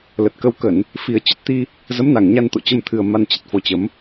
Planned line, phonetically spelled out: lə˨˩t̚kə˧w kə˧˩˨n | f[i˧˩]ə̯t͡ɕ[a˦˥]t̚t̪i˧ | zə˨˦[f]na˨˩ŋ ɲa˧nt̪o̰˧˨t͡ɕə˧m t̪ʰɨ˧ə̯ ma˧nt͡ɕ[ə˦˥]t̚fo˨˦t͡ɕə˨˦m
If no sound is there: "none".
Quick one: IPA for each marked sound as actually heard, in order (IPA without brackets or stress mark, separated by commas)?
i˨˩, ə˦˥, m, ə˨˩